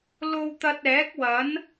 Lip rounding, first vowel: rounded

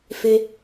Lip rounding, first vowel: unrounded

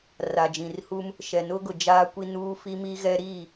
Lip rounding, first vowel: unrounded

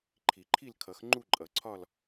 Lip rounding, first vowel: unrounded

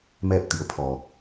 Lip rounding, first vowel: unrounded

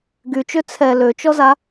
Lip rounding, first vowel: rounded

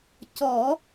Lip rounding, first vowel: rounded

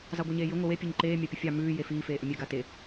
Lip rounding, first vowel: unrounded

